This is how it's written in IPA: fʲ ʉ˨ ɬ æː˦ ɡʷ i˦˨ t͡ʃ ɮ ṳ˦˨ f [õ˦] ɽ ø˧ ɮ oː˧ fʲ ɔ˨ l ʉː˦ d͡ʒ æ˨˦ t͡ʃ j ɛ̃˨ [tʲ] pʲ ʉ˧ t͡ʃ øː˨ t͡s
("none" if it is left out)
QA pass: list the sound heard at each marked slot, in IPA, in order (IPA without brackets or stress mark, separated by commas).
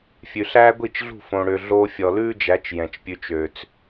õ˧, t͡ʃ